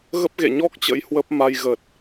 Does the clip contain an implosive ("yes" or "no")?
no